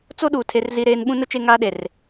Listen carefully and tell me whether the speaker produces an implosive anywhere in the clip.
yes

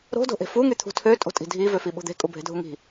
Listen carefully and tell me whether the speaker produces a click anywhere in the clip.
no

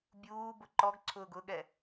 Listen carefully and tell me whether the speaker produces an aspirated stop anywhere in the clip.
yes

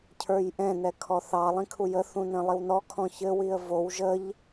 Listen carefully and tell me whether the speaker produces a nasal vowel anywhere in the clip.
yes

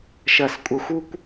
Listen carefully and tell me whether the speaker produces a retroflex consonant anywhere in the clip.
no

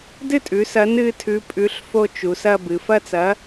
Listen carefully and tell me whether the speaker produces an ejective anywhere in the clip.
yes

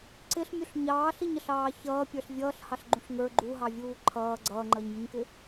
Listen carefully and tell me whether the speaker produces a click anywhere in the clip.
yes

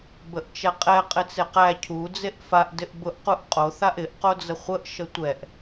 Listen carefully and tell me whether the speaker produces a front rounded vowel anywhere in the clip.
no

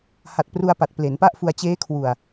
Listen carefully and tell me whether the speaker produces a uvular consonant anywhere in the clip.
no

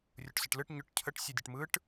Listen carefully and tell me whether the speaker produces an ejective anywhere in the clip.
no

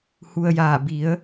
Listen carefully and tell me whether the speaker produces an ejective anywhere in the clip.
no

